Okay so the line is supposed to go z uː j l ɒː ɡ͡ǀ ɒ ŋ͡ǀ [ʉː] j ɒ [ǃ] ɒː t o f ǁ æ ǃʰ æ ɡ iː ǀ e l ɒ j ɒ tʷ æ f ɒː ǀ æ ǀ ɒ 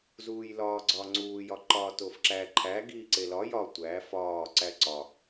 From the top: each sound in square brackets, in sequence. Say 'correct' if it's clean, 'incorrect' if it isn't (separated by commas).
incorrect, correct